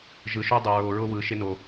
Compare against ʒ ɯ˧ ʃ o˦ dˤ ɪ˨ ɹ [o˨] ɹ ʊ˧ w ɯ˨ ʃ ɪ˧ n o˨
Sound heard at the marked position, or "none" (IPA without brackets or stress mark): o˨